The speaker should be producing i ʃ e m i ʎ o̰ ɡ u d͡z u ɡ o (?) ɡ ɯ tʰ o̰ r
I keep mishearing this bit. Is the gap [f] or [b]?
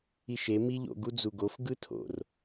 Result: f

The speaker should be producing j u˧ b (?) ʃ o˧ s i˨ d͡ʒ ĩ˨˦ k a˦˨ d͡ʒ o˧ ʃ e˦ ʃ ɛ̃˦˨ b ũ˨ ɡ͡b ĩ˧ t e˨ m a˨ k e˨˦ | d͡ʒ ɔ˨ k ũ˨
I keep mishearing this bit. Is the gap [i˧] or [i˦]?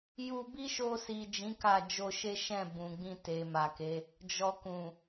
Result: i˦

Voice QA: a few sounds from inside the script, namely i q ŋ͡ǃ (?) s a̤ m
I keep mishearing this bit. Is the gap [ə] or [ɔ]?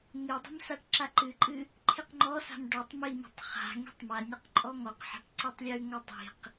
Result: ɔ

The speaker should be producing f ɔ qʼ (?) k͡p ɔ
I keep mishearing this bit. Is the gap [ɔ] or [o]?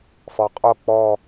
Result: o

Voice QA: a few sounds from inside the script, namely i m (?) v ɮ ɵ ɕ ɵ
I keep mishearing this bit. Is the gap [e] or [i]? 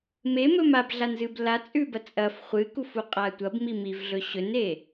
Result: i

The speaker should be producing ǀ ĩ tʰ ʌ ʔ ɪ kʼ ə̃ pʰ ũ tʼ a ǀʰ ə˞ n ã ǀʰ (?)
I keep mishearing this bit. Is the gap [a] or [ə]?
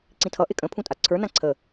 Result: ə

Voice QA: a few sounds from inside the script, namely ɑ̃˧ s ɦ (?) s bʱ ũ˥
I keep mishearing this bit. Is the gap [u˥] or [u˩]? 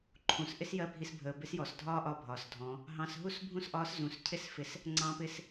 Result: u˥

